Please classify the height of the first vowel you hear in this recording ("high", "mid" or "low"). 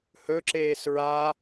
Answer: mid